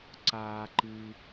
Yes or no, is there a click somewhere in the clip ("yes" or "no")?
yes